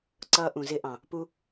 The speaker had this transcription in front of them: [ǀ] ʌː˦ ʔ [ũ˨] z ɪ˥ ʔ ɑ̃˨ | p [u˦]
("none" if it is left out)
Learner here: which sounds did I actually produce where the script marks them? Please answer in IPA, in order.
ǀ, ũ˨, u˦

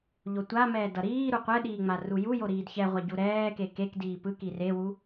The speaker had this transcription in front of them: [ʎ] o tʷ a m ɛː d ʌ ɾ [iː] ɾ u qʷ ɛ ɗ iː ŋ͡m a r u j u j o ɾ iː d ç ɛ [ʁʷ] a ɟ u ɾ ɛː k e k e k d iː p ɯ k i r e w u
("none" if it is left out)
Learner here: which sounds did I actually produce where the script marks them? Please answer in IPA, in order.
ʎ, iː, ʁʷ

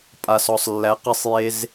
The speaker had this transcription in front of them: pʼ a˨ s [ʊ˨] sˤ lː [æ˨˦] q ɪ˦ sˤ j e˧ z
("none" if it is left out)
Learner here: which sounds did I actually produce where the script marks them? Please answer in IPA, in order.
ɔ˨, æ˨˦

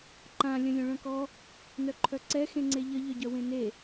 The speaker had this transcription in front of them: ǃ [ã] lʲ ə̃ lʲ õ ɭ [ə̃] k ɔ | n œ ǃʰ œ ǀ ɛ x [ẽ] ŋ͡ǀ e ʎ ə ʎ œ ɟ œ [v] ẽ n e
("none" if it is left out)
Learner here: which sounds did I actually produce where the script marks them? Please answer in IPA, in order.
ã, œ̃, ẽ, w

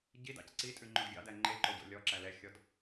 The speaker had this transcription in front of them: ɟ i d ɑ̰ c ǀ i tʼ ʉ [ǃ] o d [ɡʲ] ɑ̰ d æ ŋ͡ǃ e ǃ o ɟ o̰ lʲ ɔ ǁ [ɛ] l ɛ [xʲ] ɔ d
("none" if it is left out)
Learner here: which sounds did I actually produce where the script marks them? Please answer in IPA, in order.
ŋ͡ǃ, ɡʲ, æ, xʲ

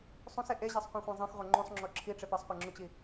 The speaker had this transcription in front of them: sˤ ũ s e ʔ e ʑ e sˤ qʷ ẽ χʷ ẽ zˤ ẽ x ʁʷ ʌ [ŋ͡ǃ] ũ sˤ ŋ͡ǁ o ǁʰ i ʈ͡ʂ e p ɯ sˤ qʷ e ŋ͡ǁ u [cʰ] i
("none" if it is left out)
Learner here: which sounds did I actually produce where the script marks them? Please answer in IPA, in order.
ŋ͡ǃ, t͡ɕ

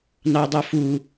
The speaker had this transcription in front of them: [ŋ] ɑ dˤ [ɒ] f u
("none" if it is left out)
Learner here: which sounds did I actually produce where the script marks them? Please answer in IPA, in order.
n, ɑ

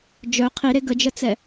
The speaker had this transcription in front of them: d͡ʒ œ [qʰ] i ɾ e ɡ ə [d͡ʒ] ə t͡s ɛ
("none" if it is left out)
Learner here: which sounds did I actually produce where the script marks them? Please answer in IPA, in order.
qʰ, d͡ʒ

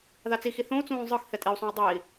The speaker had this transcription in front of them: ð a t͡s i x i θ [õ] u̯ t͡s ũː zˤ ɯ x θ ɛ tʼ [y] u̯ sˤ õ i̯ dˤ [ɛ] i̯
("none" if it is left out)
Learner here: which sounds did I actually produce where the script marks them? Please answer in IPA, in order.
õ, i, e

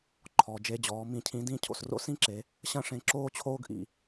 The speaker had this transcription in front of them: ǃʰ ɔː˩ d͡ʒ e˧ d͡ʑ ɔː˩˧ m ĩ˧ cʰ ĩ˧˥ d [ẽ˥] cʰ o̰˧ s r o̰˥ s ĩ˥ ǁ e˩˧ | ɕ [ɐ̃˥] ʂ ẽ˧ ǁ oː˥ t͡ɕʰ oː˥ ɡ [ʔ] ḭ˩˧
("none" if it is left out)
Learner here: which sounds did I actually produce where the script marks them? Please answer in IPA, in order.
ĩ˥, ɐ̃˥, ʔ

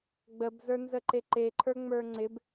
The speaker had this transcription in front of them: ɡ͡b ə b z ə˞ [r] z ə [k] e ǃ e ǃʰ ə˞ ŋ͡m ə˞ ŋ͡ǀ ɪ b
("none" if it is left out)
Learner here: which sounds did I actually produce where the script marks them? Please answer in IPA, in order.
n, ǃ

